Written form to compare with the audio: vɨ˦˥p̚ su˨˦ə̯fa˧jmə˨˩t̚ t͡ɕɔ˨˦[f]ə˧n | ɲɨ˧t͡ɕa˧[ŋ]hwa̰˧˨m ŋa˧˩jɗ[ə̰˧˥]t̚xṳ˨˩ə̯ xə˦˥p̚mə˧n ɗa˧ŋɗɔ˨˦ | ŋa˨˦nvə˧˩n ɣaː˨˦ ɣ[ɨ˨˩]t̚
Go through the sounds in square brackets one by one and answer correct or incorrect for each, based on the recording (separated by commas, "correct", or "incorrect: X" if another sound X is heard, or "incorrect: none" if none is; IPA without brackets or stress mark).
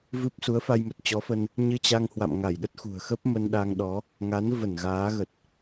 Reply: correct, correct, incorrect: ə˦˥, incorrect: ə˨˩